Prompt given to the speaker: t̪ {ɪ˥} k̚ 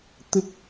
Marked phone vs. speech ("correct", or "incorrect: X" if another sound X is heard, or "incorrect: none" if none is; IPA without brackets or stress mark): correct